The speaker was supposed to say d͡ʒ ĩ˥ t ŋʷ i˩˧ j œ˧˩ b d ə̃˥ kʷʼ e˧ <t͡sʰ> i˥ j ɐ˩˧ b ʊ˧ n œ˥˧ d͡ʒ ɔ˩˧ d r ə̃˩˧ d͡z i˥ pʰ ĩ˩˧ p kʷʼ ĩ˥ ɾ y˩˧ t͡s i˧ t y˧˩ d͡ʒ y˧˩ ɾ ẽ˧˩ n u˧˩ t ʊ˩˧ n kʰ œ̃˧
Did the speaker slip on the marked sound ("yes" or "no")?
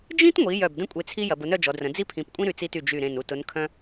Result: no